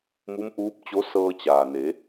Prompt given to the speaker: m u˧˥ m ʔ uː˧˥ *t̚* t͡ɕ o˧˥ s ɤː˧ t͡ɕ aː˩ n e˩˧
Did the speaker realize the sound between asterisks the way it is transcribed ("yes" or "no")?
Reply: no